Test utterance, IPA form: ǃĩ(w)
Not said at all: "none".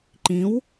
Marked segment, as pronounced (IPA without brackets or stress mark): w